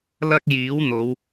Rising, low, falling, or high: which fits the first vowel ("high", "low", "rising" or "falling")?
high